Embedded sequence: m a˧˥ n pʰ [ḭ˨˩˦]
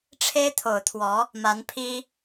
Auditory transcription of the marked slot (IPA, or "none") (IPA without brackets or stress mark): i˥